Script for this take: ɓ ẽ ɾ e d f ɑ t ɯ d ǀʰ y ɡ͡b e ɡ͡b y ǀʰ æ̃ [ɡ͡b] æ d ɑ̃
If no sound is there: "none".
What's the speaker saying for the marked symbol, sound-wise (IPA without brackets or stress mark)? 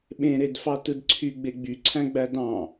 ɡ͡b